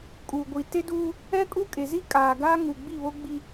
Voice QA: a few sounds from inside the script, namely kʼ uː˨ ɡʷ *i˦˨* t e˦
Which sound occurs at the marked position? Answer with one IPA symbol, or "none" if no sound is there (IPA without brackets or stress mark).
i˨